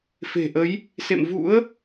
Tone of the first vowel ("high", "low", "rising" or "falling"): low